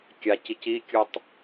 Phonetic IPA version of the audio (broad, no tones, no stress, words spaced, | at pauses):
kʲacic ikʲutˤ